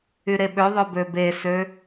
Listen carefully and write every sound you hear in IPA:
yɾeɓøðˤø bøbesø

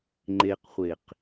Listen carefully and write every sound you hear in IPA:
ŋ͡ǃeqχʷeq

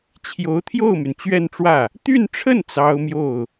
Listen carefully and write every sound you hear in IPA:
t͡ɕʰjo˧˥ʊ̯t̪ʰjo˥˩ʊ̯my˩n t͡ɕɥɛ˥˧nʈ͡ʂwä˥˩ | t̪y˥˧nʈ͡ʂʰə˥˩n t͡sɑ˥ʊ̯mjo˥˩ʊ̯

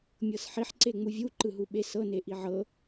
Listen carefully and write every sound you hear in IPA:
mʲɤsħiħ ǀeŋ͡muvʲu ǃɯɦuɓesɤ neʔiʕɤ

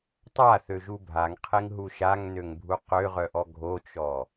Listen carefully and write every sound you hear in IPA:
tˤaθøʒu bʱaŋqʰeŋɦu ʃaŋnøŋbʱu qøʁœʔɔ ɡʱot͡ʃɔ

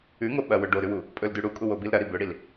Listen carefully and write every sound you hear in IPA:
ʉŋo ɓɐwɵ ɖoɾʉwu | pʼɵldʉ ɽukʼuwobil ɾɐɾi bɵɽil

